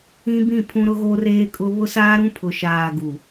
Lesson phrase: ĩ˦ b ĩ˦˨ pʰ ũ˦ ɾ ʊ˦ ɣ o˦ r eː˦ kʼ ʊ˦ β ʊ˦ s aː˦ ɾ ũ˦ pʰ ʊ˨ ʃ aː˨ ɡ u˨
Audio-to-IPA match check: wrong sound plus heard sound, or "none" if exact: none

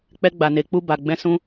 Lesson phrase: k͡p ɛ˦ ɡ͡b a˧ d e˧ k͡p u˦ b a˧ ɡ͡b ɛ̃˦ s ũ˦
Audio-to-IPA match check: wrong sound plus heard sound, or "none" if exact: d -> n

